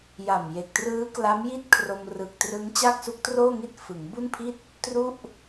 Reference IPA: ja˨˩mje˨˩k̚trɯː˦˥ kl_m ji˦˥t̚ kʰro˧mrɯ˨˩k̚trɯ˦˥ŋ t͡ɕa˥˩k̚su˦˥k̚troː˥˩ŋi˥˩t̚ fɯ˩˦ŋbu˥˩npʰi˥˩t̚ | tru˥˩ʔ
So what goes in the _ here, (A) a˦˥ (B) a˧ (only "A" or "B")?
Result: A